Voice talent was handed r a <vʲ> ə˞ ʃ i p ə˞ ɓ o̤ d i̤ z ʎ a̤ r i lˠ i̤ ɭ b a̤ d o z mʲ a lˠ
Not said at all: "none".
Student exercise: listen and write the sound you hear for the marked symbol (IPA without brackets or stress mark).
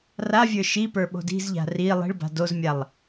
vʲ